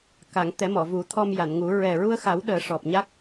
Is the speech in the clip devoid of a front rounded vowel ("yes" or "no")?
yes